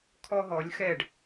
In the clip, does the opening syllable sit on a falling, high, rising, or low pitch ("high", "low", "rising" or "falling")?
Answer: high